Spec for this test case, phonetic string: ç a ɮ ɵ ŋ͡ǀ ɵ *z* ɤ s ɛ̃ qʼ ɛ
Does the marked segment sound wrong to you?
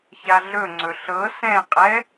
yes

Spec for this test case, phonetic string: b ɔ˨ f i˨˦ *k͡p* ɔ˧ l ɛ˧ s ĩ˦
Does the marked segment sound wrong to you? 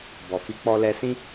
no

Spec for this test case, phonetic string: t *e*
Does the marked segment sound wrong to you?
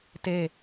no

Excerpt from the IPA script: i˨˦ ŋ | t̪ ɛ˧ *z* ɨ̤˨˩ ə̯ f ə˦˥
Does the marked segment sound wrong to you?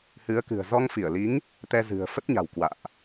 no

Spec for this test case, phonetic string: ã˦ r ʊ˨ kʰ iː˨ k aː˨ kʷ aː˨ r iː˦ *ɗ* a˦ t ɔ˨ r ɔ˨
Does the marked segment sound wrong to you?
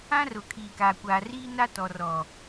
yes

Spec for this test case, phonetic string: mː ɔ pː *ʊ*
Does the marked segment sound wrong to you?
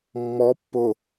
no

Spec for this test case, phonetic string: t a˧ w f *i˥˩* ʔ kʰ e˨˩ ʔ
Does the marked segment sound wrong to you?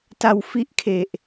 yes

